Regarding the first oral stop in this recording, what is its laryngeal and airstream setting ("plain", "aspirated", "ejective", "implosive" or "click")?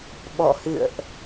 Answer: implosive